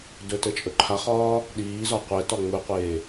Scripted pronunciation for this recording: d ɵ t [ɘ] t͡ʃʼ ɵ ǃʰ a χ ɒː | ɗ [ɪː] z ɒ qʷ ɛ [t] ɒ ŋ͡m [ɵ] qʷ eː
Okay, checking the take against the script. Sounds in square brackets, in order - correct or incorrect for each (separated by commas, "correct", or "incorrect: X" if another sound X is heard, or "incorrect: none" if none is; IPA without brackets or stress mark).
correct, incorrect: iː, correct, correct